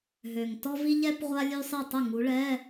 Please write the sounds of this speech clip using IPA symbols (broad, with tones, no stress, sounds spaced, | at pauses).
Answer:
ɦ ø˨˩ ŋ t ɔ˥ v i˥ ʎ ɛ˥ p ʁʷ a˥ lʲ ø˥ sˤ i˥˩ tˤ ə˥˩ ŋ u˨˦ ɭ ɛ˧˥˧